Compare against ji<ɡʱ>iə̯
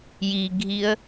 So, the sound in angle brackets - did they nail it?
yes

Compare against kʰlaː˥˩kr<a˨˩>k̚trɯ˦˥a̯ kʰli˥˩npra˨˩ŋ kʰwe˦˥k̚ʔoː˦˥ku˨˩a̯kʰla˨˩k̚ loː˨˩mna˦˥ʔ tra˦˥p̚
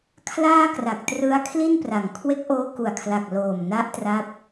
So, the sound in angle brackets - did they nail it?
yes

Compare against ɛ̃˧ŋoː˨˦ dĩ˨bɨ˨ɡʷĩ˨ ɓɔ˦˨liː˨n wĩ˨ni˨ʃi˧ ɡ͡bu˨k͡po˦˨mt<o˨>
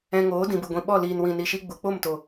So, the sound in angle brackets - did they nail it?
yes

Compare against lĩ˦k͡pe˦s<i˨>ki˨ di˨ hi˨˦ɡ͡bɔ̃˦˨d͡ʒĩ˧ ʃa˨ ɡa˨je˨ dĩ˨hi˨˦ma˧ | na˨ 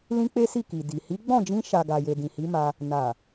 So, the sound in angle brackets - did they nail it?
no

